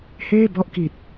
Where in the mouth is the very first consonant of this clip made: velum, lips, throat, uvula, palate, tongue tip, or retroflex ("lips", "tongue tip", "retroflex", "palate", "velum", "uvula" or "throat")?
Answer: throat